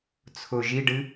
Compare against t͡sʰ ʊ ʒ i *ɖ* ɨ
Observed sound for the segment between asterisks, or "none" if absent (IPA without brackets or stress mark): ɖ